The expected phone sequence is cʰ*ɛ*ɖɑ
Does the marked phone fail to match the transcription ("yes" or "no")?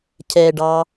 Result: no